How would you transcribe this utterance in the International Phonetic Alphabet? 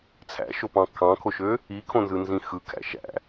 t͡sʰ æ̰ ʃ o p ɑ̃ kʰ ɑ̃ kʰ o ʃ ø | i kʰ õ n z ɯ n z ĩ x ɯ kʰ æ̰ ʃ æ̰

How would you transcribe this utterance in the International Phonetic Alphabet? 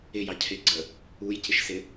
ɪ j ɑ cʰ ɪ ɡ͡ǀ ə | u j c ɪ ʃ s ɪ

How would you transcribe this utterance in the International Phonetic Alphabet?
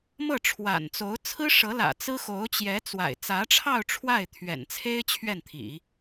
m ɤ˥˩ ʈ͡ʂʰ w a̰˨˩ n t͡s o˧˥ ʊ̯ t͡sʰ ɹ̩˥ ʂ ɤ˧˥ l ä̰˨˩ t͡s ɹ̩˥ x o˧˥ ʊ̯ t͡ɕ j ɛ˧˥ t͡s w a̰˨˩ ɪ̯ t͡s ä˧˥ ʈ͡ʂʰ ɑ˥˧ ʊ̯ ʈ͡ʂʰ w a˥˩ ɪ̯ t̪ʰ ɥ ɛ̰˨˩ n t͡sʰ e˥ ɪ̯ t͡ɕʰ ɥ ɛ˥˩ n t̪ʰ ḭ˨˩˦

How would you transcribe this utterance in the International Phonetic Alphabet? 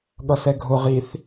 ɠ ʌ s ɛ ɡʱ ʊ ʁ i θ

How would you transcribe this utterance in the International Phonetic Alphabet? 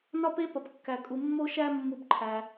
n ɒ˥ p e˥ p ɒ˨ p kː æ˨ kʼ u˨ mː o˦ ʃ æ˦ mː u˦ b ǃʰ æ˨

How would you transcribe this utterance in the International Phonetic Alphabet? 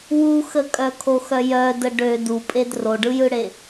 w u x ə kʼ œ kʰ o x œ j œ d ə ɖ ø d u pʼ e d r o ɖ ɯ j ɯ ɽ e

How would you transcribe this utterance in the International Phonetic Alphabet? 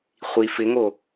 χʷ i f ɪ ŋ o

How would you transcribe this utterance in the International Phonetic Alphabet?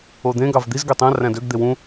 o d̪ ẽ ɡ ɑ v d̪ i z ɡ ø tˤ æ̃ r æ̃ d ø ɡ d̪ e w ũ

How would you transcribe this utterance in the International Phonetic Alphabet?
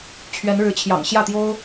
t͡ɕʰ ɥ ɛ˧˥ n ɻ ɻ̩˧˥ t͡ɕʰ j ɑ̰˨˩ ŋ ɕ j ä˥˩ t̪ j o˥ ʊ̯

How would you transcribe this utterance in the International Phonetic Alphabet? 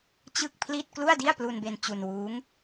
t͡ɕ ɯ˥˩ k̚ pʰ l i˥˩ t̚ k l u˥˩ a̯ d i˥˩ a̯ p l u˧ n b e˧ n t͡ɕ u˧ n w uː˦˥ ŋ

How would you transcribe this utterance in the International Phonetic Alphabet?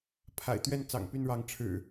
pʰ a̰˨˩ ɪ̯ t̪ ɥ ɛ˥˨ n t͡s ɑ̰˨˩ ŋ p y˥˨ n ɻ ɑ˨˦ ŋ ʈ͡ʂʰ ɻ̩˨˩

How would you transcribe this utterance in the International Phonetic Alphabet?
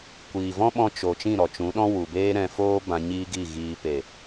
kʷ iː˨ v ɔ̃˦ ɓ ɔ̃˧ t͡ʃ o˨ t͡ʃ ĩ˦˨ ɾ ɔ˨ t͡ʃ ũ˨˦ ɗ ɔ̃˦ w u˨ b eː˦ ɾ ɛ̃˧ f oː˦ b ã˧ ɲ iː˦ ɡ i˦˨ ɣ iː˧ p e˨

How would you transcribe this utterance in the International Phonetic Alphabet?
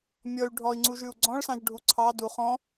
mʲ ɔ y̯ ɖʱ ɔ i̯ ŋ͡ǀ u ʒ ʉ u̯ ɡ͡ǀ ɔ̃ ɭ s ɑ̃ ʒ ɖʱ u ǀʰ ɑ d u χ ɔ̃

